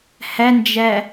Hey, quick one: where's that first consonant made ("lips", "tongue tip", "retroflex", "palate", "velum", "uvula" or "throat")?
throat